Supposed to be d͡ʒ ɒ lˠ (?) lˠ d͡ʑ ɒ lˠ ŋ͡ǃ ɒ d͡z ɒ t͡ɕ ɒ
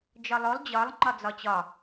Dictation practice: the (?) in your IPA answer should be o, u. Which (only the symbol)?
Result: o